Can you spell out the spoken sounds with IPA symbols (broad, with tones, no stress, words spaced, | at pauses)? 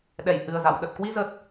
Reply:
ɗɛ˧˩jhɨ˨˩ə̯za̰˧˨w ɗə˨˩t̚kwi˧zə˨˩t̚